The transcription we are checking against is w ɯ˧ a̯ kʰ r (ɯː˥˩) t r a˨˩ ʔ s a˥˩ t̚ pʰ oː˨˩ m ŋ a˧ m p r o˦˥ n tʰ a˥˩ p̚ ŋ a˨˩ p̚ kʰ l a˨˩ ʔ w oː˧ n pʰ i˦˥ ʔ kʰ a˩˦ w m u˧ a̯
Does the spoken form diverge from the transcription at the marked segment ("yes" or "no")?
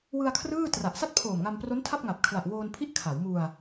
no